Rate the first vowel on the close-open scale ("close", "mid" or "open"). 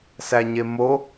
open